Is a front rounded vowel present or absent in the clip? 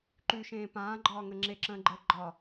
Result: absent